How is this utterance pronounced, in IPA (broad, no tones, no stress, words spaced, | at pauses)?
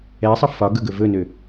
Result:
ɛsˤə fɒɡɵɡɵ vɵnø